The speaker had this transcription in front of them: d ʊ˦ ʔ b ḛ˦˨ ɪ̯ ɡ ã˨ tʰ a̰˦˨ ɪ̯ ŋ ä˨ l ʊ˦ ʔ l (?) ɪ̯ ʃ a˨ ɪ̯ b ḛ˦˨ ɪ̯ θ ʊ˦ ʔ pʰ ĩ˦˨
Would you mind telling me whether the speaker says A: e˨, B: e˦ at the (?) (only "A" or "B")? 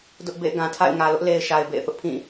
A